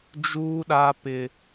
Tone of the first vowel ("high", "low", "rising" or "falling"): high